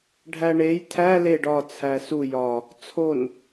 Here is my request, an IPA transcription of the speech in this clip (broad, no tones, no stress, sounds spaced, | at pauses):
ɖʱ æ ɳ e j tʰ æ l e ɖ ɒ t͡sʰ æ s u j ɒ | t͡sʰ o n